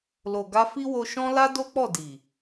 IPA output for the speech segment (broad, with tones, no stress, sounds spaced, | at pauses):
l o˨ ɡ a˧ f i˦ w o˧ ʃ ɔ̃˦ l a˦ d o˦ k͡p ɔ˦˨ d i˨